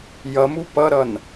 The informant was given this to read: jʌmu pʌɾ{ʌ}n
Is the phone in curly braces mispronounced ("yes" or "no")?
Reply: no